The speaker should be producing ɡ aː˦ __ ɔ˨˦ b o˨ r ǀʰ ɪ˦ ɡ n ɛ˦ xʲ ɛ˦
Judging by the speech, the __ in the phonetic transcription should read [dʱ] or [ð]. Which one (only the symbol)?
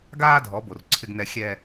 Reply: dʱ